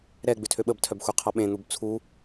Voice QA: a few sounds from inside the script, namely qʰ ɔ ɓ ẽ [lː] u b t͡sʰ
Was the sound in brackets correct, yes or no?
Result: no